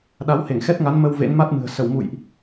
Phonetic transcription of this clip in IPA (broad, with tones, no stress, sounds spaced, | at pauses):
ɗ a˨˦ w h e˧˩ ŋ x ɛ˦˥ t̚ ŋ a˨˦ n m ə˧ w v ḛ˧˥ n m a˦˥ t̚ m ɨ̤˨˩ ə̯ s ə˧˩ w m ṵ˧˨ j ʔ